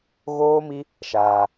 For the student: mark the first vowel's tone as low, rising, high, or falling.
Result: high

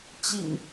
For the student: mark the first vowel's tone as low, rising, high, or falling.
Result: low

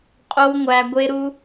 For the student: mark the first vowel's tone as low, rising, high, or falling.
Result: high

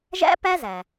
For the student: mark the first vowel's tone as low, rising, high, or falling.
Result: high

